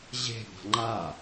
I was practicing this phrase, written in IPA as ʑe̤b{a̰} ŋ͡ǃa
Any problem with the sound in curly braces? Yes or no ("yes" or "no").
yes